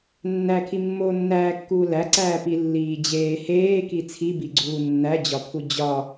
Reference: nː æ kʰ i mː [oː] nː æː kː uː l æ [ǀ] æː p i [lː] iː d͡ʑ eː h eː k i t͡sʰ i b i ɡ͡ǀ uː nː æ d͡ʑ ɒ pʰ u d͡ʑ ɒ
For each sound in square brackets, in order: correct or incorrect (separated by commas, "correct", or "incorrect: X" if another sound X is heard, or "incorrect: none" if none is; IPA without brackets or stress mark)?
correct, correct, correct